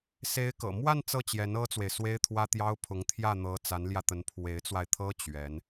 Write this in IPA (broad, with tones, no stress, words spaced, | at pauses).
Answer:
se˧˥ɪ̯kɤ̰˨˩ mwa˥˧n t͡sɤ˥˩t͡ɕjɛ˧˥n ɤ˥t͡swe˨ɪ̯ swe˥ɪ̯t̪ʰwä˥t̪jɑ˥ʊ̯ pʰʊ˧˥ŋ t̪ʰjä˥˩n̪ɤ˧˥ t͡sa˧˥nljä˧t̪ə˧˥n pʰwe˧˥ɪ̯t͡swa˧ɪ̯t̪ʰɤ˥ t͡ɕɥɛ˧˥n